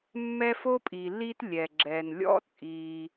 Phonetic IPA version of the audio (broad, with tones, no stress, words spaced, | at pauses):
mːɛ˦fo˥pʼi˩ li˥tlʲɛ˩ ɡ͡ǁɛ˩nlʲɔ̰˥t͡sʼi˨